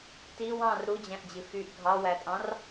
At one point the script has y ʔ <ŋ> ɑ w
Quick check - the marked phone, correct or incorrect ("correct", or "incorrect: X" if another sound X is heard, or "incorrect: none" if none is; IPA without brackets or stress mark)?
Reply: incorrect: ɡʱ